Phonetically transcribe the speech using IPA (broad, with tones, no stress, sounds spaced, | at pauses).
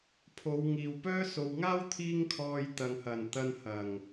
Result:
pʰ o˨˧ w ŋ iː˨ w p œː˥ s o˨ w ŋ aː˥ w t̪ʰ iː˥ ŋ kʰ ɔː˧ j t̪ ɐ˨ ŋ h ɐ˨˩ n t̪ ɐ˧ n h ɐ˨˩ ŋ